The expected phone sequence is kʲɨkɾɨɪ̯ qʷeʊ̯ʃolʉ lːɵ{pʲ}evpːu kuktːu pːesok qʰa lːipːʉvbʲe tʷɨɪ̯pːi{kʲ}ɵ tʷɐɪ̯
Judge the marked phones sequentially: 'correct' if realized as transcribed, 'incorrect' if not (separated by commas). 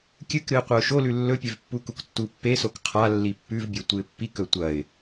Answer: correct, incorrect